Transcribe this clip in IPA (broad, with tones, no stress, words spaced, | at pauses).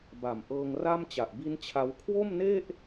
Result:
ba˨˩mʔɤː˧ŋra˥˩m t͡ɕa˨˩ʔbi˦˥n t͡ɕʰa˦˥w kʰwo˥˩mne˥˩ʔ